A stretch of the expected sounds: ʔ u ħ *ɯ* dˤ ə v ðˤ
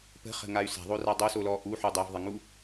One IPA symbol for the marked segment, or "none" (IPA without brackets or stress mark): u